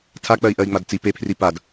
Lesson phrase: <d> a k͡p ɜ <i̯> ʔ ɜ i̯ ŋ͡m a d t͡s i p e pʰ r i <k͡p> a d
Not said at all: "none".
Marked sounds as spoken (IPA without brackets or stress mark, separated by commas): tʰ, i̯, p